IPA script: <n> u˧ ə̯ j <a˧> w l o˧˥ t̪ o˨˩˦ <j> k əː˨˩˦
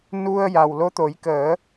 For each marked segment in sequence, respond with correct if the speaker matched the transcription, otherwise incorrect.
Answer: correct, incorrect: a˨˩, correct

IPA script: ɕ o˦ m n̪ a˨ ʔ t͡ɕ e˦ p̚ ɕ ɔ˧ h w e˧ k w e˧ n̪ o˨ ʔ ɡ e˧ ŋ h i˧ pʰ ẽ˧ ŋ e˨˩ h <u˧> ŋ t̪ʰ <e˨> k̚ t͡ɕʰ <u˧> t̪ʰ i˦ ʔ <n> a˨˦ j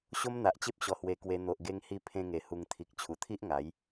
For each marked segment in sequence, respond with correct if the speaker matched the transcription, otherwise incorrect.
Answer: correct, incorrect: i˨, incorrect: u˨˩, incorrect: ŋ

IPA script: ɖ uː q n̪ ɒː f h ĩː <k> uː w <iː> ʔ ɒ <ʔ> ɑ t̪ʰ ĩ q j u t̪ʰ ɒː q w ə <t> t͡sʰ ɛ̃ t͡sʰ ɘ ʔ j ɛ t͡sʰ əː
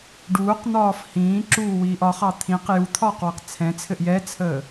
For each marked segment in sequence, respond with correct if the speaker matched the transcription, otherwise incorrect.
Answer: incorrect: ǁ, correct, incorrect: χ, incorrect: q

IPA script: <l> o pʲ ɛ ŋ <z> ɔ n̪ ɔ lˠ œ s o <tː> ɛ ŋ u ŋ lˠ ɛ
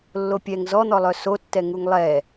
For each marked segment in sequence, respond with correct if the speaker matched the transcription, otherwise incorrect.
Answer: incorrect: lː, correct, correct

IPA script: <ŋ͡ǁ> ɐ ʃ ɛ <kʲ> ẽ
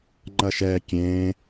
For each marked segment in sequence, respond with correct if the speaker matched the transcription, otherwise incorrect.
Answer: incorrect: ŋ͡ǃ, correct

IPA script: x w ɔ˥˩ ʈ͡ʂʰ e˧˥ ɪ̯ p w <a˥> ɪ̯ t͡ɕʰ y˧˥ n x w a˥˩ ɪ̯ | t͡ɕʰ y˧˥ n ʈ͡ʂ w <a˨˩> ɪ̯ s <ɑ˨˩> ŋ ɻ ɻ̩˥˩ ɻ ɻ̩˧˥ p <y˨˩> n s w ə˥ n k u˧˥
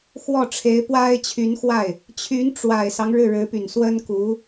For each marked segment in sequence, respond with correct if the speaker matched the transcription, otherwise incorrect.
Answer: correct, correct, incorrect: ɑ˦, correct

